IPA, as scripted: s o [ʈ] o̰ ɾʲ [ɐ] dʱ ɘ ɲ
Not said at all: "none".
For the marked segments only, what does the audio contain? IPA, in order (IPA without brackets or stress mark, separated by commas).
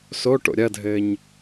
ʈ, ɐ